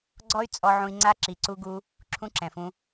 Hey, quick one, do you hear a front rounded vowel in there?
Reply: yes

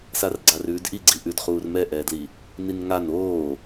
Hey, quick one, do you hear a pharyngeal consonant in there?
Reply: no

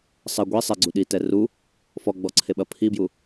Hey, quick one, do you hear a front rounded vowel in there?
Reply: no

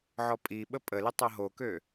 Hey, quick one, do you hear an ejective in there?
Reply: yes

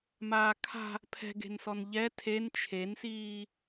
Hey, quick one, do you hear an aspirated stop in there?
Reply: yes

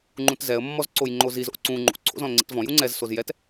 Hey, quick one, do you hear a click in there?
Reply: yes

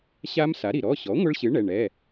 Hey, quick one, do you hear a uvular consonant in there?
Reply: no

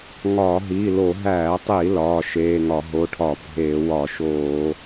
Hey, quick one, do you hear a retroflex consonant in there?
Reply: yes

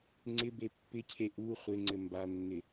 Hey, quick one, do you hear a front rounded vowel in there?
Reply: no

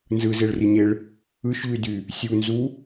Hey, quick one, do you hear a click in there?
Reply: no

